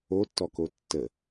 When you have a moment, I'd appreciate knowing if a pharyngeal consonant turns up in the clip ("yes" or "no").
no